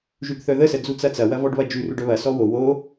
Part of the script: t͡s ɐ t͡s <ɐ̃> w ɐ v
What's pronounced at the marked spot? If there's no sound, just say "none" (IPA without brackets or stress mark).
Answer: ɐ